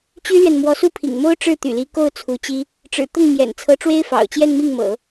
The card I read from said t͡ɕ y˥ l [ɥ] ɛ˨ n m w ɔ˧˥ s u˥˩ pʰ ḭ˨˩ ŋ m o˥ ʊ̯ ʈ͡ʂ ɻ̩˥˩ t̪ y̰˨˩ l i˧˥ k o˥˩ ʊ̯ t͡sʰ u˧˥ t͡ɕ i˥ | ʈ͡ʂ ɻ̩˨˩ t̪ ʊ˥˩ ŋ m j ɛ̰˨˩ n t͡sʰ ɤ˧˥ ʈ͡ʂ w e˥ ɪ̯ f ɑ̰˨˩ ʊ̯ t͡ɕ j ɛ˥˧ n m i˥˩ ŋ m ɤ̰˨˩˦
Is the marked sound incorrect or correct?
correct